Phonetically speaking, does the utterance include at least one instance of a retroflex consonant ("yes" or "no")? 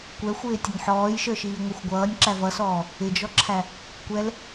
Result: no